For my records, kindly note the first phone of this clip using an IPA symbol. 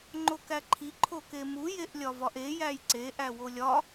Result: ŋ͡ǃ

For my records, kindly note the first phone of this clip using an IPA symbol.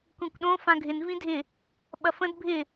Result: kʷ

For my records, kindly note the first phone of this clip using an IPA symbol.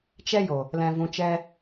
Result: t͡ʃ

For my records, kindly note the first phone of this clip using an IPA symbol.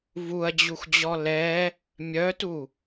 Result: v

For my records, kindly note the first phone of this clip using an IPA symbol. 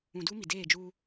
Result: ũ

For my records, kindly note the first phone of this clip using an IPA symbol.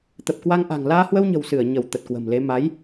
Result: t̪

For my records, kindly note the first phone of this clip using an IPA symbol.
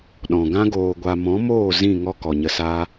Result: ɗ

